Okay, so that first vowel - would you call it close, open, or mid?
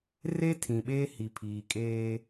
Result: mid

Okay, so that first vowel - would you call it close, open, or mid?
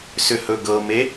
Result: close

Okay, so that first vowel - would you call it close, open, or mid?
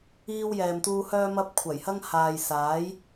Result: close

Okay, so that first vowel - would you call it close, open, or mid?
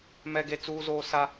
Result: mid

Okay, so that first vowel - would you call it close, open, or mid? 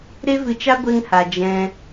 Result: mid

